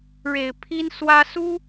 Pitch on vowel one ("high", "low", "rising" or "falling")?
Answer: low